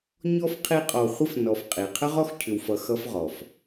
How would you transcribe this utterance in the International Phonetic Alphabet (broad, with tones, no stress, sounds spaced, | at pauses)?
ɲ ɔ˥ f qʰ i˦ qʼ ɔ˨ χʷ ə˥ f n ɔ˨ f qʼ i˩ qʰ ə˥ ʁ ɔ˥ x cʰ ʏ˨ w f ʌ˨ x ʌ˥ f ʁ ɔ˩ f